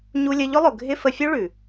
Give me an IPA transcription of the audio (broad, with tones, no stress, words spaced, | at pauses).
ɲu˧lʲə˧ʎʊ˦lˠʊ˨ ɡʱɪ˧ fə˧fʲu˦ɭʉ˨